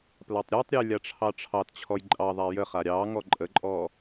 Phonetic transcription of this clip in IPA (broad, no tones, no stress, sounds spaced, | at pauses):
p l a tˤ ɾʲ ɑ tˤ ɾʲ ə j lʲ a ʈ͡ʂʰ ɑ ʈ͡ʂʰ ɑ t t͡ɕʰ ɔ j ǃʼ ɑ ðˤ a j ə χ a ɾʲ ɑ ŋ ɔ ǃʼ ə ǃʼ ɔ